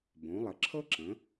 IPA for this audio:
b õ˩˧ lˠ ə˩˧ ǁʰ ɤ˦ ǁ ə̃˩˧

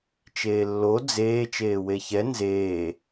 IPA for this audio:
t͡ʃ eː lː o d͡z eː t͡ʃ eː w e ç ɛ n z eː

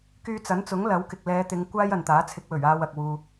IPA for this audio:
k yː˧ t͡s ɐ˨˥ n t͡s ʊ˨˥ ŋ l ɐ˨˥ w k ɪ˨ k̚ l ɛː˨˧ t̪ ɪ˨˧ ŋ kʷ aː˥ j ɐ˨ n t̪ aː˨˥ t͡sʰ ɪ˧ k̚ w ɵ˨˩ ɥ aː˧ w ɐ˨ k̚ w uː˨

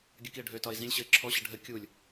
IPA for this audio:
ɡʲ ə k i ə̯ ɖʱ ø t ɒ ɪ̯ z ĩ lʲ ɕ ə ɪ̯ ǁʰ ɔ ɕ ə ɖʱ ə kʲ u lʲ

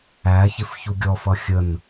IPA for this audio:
æ ç ɪ f ç u ɡʲ ɔ f ʌ xʲ ə n

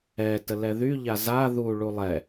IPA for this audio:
ɛ t ə l ɛ ð y ʎ a z a ð u ɭ u lˠ ɛ

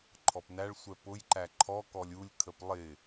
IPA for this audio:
ǃʰ ɔ p n æ ɭ sʷ ɛ p ʊ j ǃ æ ǃʰ ɔ k ɔ lʲ u lʲ kʰ ə p lˠ ɪ

